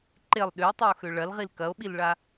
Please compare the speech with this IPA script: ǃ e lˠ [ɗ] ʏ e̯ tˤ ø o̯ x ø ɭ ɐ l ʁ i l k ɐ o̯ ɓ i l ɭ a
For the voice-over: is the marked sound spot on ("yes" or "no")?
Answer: yes